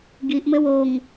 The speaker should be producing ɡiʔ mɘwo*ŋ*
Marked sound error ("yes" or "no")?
no